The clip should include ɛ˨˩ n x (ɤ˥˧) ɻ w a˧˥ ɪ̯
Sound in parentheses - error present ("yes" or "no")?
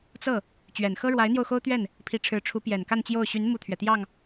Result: yes